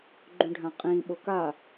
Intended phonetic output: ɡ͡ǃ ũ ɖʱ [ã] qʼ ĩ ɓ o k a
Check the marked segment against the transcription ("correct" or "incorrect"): correct